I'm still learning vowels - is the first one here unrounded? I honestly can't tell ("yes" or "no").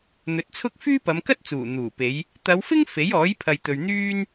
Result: no